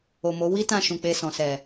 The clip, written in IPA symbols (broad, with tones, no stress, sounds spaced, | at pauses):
o˨ m o˨˦ w i˦ t ã˦˨ ʃ ũ˨ k͡p e˧ s ɔ̃˨ s ɛ˨